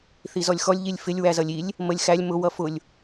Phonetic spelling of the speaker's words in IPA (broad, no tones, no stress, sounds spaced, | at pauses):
θ i z ɔ lʲ x ɔ lʲ ʎ i lʲ f ɪ lʲ w æ z ʌ lʲ i lʲ | m ə lʲ x æ lʲ m ʊ w ʌ f ʊ lʲ